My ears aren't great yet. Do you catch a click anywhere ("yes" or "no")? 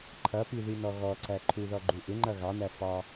yes